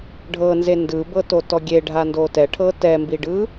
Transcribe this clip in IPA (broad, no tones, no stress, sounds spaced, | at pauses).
ɖʱ ɤ n z e n d ɯ b ɤ t o t ɔ ɡʲ e ɖʱ a n d o t ɛ ʈʰ ɤ t ɛ m b i ɖ ɯ